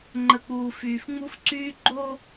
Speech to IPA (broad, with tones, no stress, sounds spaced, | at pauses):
ŋ͡ǃ ə˨ k͡p uː˨ f yː˨ f ŋ͡m u˦ f ǀ yː˦ ɡ͡ǃ o˦